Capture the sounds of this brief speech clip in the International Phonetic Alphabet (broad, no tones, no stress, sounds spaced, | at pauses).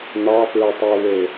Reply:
n̪ ɑ f ɹ ə tˤ ɛ w ɘ